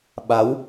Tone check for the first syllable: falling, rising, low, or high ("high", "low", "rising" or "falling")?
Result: rising